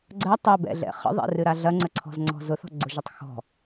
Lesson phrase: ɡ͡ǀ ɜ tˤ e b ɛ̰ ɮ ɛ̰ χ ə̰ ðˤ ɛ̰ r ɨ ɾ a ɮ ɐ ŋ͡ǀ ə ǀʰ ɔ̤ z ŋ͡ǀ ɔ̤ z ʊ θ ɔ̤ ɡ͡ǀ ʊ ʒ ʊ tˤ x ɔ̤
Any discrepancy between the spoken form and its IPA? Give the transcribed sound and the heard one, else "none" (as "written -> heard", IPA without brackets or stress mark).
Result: none